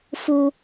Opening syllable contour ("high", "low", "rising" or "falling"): high